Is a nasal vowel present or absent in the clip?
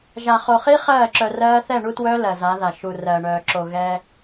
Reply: absent